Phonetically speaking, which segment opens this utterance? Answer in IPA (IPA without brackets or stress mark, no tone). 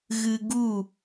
ɣ